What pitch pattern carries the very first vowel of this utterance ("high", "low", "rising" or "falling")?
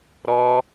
high